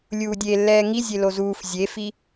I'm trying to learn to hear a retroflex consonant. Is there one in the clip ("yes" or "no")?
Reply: no